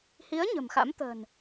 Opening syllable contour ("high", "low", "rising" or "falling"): rising